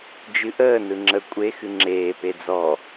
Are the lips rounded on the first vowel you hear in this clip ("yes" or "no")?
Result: no